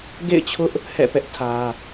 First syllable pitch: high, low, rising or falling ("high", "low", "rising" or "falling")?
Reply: falling